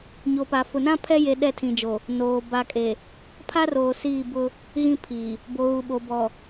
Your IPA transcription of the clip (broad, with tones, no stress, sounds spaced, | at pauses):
ɲ o˨ p a˨ f ʊ˨ n ã˦ pʰ ɛ˦ j e˨ ɗ ɛ˦˨ tʰ ĩ˨ d͡ʒ o˨ | n oː˨ b a˨ kʼ e˨ | pʰ a˦ r oː˨ s iː˦˨ b ʊ˦ | ɣ ĩ˦ pʰ iː˨ | b o˨ ɣ u˨ ɓ o˨ b ɔ˨